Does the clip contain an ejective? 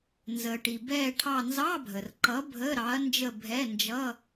no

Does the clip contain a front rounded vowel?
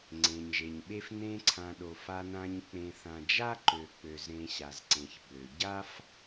yes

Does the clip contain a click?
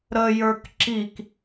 yes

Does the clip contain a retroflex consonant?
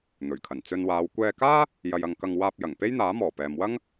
no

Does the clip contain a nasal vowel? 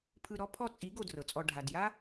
no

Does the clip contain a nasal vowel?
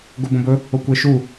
yes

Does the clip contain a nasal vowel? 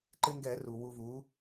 no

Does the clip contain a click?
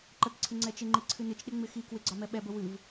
yes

